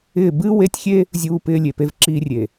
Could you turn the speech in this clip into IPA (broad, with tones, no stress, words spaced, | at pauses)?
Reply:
ɪː˦˨ bɨː˦we˦tʲxʲe˦ | zʲuː˦pɪː˦ lʲe˨pe˦vǁiː˦rʲe˨